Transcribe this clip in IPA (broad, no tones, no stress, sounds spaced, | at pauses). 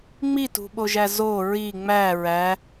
ŋ͡m i t ṳ ɓ o ʒ æ z o ɹ i ŋ͡m æ ɹ æ